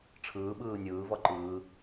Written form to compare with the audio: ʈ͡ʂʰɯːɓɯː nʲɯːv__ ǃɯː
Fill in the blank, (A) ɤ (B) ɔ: B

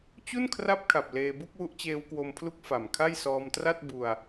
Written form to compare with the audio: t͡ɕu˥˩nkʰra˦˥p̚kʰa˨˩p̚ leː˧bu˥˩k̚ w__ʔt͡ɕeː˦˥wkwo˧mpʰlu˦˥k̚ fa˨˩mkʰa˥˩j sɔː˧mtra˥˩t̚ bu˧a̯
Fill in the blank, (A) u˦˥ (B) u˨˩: A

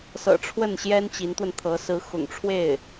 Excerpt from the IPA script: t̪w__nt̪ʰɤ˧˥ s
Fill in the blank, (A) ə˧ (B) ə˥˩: A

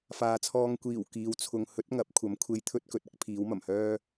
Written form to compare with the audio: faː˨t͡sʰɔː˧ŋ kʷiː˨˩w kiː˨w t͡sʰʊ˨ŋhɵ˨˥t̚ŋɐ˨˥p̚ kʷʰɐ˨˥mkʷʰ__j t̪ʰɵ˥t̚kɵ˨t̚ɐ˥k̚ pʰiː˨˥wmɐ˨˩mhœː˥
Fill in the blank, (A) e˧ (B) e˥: A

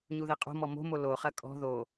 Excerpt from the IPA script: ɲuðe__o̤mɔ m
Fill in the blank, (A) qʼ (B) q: A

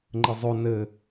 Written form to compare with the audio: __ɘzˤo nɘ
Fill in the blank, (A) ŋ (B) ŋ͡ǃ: B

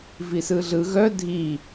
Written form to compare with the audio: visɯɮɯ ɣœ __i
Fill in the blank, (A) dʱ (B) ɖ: A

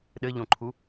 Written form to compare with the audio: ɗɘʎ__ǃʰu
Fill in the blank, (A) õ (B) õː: A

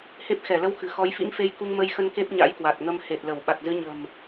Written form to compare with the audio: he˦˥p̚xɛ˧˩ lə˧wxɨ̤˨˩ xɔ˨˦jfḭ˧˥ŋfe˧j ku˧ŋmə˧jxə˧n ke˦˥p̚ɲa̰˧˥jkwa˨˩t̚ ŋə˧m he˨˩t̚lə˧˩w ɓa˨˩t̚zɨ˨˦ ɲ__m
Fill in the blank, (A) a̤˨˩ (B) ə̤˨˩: B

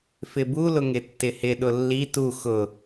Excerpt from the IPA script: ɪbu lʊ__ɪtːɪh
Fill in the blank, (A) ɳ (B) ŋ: B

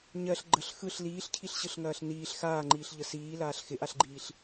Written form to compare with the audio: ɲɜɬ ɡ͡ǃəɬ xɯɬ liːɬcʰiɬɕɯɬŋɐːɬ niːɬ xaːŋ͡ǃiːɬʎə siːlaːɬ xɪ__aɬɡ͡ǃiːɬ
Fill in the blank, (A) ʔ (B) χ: A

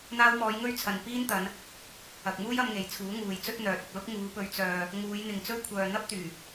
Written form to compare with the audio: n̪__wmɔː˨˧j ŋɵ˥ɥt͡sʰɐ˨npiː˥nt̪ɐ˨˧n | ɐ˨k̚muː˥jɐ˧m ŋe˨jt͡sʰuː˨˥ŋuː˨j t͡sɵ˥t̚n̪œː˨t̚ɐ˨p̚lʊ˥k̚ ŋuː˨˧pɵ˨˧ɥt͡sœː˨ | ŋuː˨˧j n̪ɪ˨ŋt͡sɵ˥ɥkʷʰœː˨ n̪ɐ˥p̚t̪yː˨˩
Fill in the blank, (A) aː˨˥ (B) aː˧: B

